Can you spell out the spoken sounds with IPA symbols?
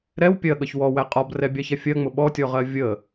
ɾ ɛ w pʲ ɜ ɠ ʌ ç w ɔ w æ qʼ ɒ b r ɛ bʲ ɑ ç ɛ fʲ ɜ ŋ͡m ʊ ɓ ɔ tʲ ɔ ʁ ɜ vʲ ə

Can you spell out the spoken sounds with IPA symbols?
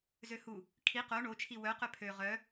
z ø h u | kʰ i q o ɳ o t͡ʃʰ i w œ q œ pʰ ø ʁ œ

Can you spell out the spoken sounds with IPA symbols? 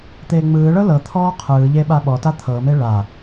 t̪ eː ŋ͡m ɯː ɭ ɤ l ɤ t̪ʰ ɔː qʰ ɯː ʎ e ɓ a ɓ ɔ t a t̪ʰ ɤ m e ɭ a

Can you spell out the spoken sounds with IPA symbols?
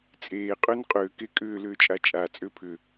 t͡sʼ eː qʼ ʏː n qʼ ʏː k e kʼ ʏː l ʏː t͡ʃʼ a t͡ʃʼ a t͡sʼ ʏː pʰ ʏ

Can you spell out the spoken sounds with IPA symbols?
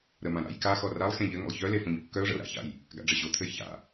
ɾ ə m ã ɾ a̰ j k a x ɔ r a lˠ x ẽ ʎ ɘ ŋ ə̰ lˠ ç œ l e f õ ɲ kː œ ʊ̯ ʐ ə̰ ʊ̯ ɾ a̰ ç a̰ j | ɡ a̰ ɖ͡ʐ ə ɕ o t̪ʰ ɘ j ç a̰

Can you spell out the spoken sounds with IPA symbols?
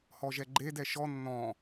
h ɔ ʒ ɛ ɡ͡ǃ e d ɛ ʃ ɔ nː ɔ̃

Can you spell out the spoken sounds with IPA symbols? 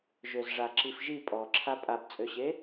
ʒ ø z ʐ a ǁ i f ʒ i pʼ ɔ ǁʰ a pʼ a b t͡sʼ ø ɕ e

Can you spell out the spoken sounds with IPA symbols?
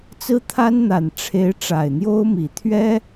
t͡s ɹ̩˥ t̪ʰ a˥ n n̪ a˨˩ n ʈ͡ʂʰ e˧˥ ɪ̯ ʈ͡ʂ a˨˩ ɪ̯ n̪ j o˥ ʊ̯ m i˨˩ t̪ʰ ɥ ɛ˥

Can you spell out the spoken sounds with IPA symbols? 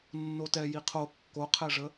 nː o t ɛ j i qʰ o kː o qʰ ɛ ʐ ə

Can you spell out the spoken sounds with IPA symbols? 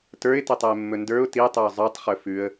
t ə˞ ɪ̯ t e tˤ ɛ ɪ̯ mː ɵ n d ə˞ ʊ̯ t i tˤ ɵ ʊ̯ zˤ ə˞ tˤ χ ɵ f ʉ ə̯

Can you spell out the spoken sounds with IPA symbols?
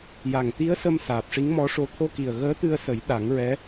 j a˨˩ ŋ t̪ i˧˥ ə̯ s ə˧ m s aː˨˩ p̚ ʂ i˧˥ ŋ m ɔ˧˥ ʂ o˧ t̪ʰ o˧ k i˨˩ ə̯ ɣ əː˧˥ t̪ ɨ˧ ə̯ s ə˨˩˦ j ɗ a˨˩˦ ŋ ɹ ɛ˧˥

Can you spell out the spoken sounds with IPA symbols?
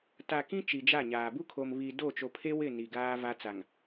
t a˨ k ĩ˦ t͡ʃ i˨ d͡ʒ a˦˨ ɲ aː˨ b u˦ kʰ o˨ m β i˨ d o˦˨ t͡ʃ o˨ pʰ e˦ w ɪ˦˨ n i˨ ɡ aː˦ v a˦ t͡s a˨ ŋ

